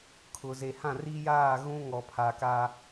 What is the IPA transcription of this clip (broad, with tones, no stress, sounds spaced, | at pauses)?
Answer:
kʰ ʊ˨ z e˨ h ã˦˨ r i˦ j aː˦˨ ɣ ũ˦ ŋ ɔ˨ pʰ a˨ k a˦